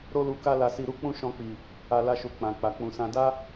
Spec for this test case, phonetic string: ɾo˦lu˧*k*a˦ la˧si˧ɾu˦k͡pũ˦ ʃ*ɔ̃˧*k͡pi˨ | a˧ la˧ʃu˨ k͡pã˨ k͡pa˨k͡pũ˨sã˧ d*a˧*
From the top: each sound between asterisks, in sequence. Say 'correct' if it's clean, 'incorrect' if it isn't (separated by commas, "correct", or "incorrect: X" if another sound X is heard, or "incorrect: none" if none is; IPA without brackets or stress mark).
correct, correct, incorrect: a˦